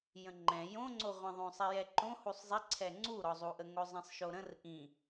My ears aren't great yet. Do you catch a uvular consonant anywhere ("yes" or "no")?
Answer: yes